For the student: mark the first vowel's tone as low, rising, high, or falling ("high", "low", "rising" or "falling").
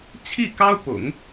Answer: falling